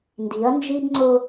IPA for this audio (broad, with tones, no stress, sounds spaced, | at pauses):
n d i˨˦ ɐ̯ n d͡ʒ i˦ b ŋ͡ǀ ʊ˦